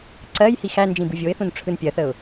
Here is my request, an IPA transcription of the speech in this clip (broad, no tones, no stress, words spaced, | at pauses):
ǀɜj hixænd͡ʒĩ bɯvʲoɪ̯θũn ʈ͡ʂʰɯnpʲɜθəʊ̯